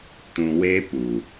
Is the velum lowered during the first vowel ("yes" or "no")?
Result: yes